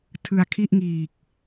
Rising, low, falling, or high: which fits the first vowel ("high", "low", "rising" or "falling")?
low